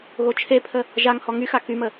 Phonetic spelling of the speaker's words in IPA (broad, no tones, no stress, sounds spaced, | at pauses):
ɣ o t͡ʃʰ e pʰ ə | ʒ a ŋ h ɔ ŋ y x a k y m ə